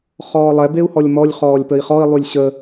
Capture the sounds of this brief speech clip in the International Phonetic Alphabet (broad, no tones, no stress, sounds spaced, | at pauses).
χ ɔː lˠ ɛ b e u̯ h ɔ lʲ m ɔ lʲ χ ɔː lʲ p ə i̯ χ ɔ i̯ lˠ y lʲ ɕ ə